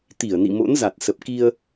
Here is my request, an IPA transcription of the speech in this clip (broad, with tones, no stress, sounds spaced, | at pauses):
t̪ i˧˩ ə̯ n ḭ˧˨ m o̰˧˥ n z a˨˩ t̚ s ə˨˩ p̚ k i˧ ə̯